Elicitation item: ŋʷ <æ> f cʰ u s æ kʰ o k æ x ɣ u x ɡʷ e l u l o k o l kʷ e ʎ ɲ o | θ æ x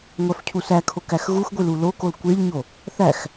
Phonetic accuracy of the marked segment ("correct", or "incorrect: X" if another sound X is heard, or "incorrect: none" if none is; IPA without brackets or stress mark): correct